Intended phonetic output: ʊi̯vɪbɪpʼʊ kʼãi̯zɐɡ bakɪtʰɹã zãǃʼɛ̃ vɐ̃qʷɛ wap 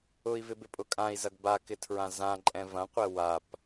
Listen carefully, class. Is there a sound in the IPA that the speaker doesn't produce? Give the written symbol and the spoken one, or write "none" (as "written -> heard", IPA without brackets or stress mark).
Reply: none